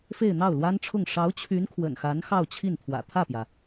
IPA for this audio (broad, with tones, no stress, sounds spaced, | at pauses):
f e˥˧ ɪ̯ n̪ ɑ˥˩ ʊ̯ l w a˥ n ʈ͡ʂʰ ʊ˥˩ ŋ ʂ ɑ˧˥ ʊ̯ t͡ɕʰ y˧˥ n kʰ w ə̰˨˩ n x a˧˥ n x ɑ˥˧ ʊ̯ t͡ɕʰ i˥˩ n t̪ʰ w ä̰˨˩ t̪ʰ ä˥˩ p j ä˩